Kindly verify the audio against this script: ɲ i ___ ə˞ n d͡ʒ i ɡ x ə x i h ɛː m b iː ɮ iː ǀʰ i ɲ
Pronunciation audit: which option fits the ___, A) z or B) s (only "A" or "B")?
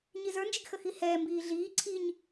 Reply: A